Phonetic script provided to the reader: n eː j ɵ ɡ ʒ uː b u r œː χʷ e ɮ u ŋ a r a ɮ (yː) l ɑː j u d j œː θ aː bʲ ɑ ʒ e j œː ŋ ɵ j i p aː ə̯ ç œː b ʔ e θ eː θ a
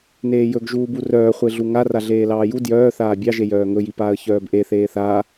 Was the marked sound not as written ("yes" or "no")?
yes